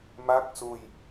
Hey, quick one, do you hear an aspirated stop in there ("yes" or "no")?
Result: no